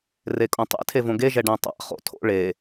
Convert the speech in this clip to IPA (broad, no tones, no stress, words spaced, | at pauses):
rekʼõtˤḛ tʰevõɡe ʒɛɖæ̃tˤa̰ χo̰tʰo̰ ɭe